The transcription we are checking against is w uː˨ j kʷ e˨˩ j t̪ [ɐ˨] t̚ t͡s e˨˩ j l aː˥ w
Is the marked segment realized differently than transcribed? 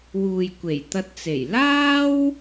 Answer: yes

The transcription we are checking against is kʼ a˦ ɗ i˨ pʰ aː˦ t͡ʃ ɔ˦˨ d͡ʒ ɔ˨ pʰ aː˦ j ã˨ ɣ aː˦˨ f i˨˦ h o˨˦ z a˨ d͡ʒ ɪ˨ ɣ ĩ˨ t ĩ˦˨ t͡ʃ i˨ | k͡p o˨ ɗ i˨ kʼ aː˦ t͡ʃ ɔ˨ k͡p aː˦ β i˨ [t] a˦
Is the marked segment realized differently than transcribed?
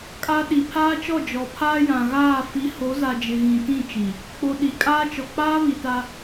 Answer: no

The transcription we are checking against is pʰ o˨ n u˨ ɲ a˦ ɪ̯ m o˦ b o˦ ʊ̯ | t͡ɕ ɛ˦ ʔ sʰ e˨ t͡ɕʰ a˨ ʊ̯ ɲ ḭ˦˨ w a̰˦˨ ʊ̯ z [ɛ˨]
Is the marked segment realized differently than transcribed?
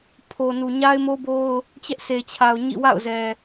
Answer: no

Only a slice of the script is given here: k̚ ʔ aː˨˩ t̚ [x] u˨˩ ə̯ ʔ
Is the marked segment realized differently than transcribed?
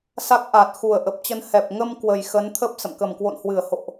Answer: no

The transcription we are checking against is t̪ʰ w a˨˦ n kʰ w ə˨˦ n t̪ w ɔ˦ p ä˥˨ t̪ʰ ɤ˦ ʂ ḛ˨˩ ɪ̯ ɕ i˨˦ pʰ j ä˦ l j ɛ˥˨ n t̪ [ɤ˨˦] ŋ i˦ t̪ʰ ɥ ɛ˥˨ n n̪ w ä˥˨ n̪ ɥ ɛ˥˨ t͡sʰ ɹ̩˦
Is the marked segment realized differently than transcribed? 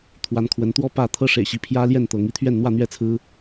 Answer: no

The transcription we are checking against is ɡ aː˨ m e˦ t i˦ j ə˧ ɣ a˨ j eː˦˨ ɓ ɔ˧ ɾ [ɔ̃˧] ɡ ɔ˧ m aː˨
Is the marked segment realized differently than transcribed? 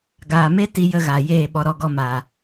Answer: yes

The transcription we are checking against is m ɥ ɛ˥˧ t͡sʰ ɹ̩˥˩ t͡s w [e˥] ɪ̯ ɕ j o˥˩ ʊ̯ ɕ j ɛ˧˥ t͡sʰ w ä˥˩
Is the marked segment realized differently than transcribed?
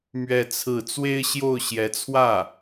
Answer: no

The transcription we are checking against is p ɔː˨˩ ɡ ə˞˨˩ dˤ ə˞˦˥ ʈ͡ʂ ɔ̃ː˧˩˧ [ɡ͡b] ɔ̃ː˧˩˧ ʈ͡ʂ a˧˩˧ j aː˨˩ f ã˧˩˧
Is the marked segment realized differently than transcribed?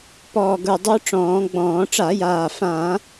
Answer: no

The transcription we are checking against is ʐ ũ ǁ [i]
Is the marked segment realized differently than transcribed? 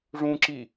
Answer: no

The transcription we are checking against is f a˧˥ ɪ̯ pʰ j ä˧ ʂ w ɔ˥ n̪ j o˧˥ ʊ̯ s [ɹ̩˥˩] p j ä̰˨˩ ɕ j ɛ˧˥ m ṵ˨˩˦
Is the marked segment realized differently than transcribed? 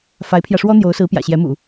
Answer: yes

